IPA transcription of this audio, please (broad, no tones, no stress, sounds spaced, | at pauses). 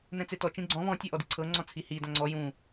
n ɛ̃ t͡s e t ɔ t͡ʃ ĩ ɡ͡ǀ ɔ̃ β ɔ̃ tʲ ɔ ʔ ɔ d i ǀʰ ɤ ŋ͡ǀ ɔ̃ t͡sʰ i h i d ã ŋ͡ǀ ɔ j ũ